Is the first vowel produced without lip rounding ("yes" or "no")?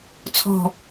no